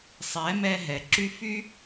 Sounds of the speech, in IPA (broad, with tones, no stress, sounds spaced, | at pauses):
sˤ ɛ˨˦ m ɛ˧ ɦ ɛ˨ ǁ y˦ f y˦